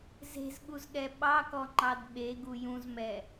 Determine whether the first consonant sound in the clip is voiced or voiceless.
voiced